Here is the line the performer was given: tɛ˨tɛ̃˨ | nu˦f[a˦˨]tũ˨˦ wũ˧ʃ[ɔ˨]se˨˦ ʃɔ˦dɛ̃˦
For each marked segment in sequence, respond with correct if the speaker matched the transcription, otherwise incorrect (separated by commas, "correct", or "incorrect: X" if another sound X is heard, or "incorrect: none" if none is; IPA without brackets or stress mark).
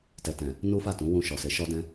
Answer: correct, correct